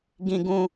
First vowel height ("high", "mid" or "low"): high